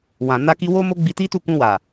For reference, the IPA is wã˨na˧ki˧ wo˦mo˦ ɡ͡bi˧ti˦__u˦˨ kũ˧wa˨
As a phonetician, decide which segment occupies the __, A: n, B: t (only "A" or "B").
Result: B